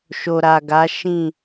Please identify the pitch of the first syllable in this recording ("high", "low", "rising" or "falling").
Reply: low